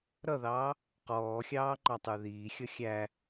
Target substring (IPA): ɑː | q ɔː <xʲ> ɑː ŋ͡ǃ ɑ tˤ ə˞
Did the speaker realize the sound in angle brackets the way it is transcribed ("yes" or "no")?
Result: yes